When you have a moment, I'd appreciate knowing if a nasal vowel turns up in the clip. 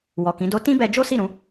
yes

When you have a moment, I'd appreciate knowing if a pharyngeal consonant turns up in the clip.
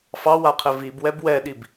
no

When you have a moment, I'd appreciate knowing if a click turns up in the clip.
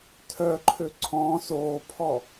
yes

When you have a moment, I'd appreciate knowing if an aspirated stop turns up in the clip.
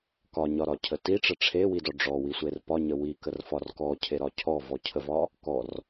yes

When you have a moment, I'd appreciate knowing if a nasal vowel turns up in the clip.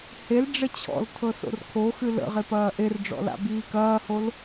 no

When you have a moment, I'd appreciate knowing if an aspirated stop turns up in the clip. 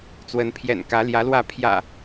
yes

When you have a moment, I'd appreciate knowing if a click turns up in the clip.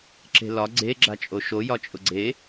yes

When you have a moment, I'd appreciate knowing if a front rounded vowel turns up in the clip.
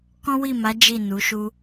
no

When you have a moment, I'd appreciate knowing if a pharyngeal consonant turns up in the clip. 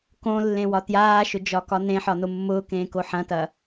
yes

